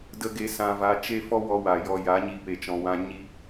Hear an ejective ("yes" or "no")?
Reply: no